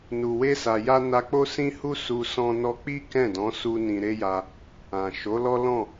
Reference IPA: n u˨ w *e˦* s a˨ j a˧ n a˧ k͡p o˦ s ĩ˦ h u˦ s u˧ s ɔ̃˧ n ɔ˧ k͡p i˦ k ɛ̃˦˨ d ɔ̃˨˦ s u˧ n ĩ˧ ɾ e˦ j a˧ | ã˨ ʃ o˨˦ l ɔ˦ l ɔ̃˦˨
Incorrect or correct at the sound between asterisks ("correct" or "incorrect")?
incorrect